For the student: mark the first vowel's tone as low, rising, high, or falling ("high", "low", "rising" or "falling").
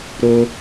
high